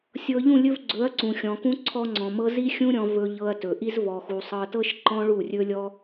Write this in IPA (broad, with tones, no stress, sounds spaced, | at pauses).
sʲ ɤ˧ ʎ ũ˦˨ lʲ ɵ˧ v ɡ͡ǀ ɵ˨˦ ɐ̯ ǀ ũ˨ xʲ ɔ̃˨ k ũ˧ ǀʰ ɔ˧ ŋ͡ǀ ɔ̃˨ m ɤ˧ z i˦ xʲ ũ˦ ɾʲ ɔ̃˧ v ɵ˧ ʎ ɤ˧ ɐ̯ t ɵ˨ ʔ i˧ z v ɔ˨ x u˨ sˤ ɤ˧ t ɤ˦ ʃ ǃ ɔ̃˦ ɭ u˦˨ rʲ ɵ˦ lʲ ɔ˦